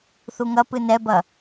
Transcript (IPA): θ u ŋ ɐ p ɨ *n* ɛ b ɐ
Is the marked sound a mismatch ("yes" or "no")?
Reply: no